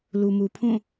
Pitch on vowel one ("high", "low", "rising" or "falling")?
low